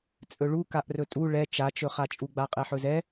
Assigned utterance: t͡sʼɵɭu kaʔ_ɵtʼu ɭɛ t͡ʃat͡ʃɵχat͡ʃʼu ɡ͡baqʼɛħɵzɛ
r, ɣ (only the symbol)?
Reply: r